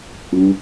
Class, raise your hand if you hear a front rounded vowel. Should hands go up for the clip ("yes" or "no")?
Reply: no